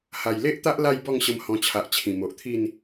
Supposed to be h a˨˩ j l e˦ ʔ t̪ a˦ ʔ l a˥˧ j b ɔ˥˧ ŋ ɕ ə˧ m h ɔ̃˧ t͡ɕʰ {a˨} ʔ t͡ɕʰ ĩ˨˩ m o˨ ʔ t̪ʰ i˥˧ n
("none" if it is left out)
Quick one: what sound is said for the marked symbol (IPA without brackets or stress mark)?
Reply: a˨